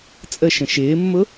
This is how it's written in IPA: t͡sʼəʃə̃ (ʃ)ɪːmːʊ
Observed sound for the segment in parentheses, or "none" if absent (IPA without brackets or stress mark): ʃ